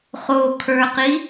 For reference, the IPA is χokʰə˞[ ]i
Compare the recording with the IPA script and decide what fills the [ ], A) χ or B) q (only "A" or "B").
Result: B